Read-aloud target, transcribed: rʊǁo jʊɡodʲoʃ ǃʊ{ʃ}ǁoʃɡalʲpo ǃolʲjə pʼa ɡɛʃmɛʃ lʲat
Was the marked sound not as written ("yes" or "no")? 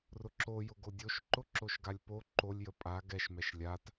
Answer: yes